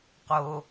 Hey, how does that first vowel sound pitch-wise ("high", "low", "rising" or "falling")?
low